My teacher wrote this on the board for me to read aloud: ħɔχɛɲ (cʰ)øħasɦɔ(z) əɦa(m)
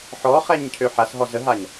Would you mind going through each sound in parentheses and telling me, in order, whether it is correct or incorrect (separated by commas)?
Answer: correct, correct, incorrect